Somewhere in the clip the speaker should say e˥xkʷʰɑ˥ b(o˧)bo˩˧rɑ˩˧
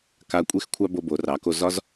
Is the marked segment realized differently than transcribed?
no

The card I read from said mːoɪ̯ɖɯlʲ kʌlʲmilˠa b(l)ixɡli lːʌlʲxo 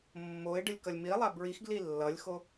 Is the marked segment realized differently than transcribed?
yes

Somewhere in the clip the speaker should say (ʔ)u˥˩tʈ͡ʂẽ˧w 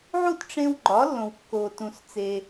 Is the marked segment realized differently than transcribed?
yes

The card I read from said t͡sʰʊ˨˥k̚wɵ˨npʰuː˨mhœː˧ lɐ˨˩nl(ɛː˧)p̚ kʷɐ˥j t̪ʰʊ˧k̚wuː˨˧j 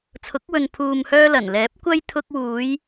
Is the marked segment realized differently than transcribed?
yes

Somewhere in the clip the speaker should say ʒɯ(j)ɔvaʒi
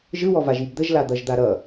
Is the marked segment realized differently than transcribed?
yes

